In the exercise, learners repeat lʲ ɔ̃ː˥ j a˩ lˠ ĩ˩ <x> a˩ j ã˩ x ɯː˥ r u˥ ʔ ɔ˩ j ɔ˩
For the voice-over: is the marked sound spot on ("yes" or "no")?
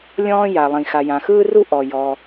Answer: yes